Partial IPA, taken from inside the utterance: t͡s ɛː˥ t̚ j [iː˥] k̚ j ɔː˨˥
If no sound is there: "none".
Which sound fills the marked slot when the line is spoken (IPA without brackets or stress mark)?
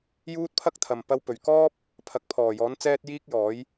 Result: iː˥